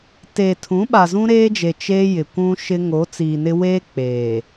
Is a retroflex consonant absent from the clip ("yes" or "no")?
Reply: yes